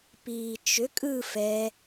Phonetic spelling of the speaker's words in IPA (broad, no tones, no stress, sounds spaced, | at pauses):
p iː t͡ʃ ʏ kʼ ɯ f ɛ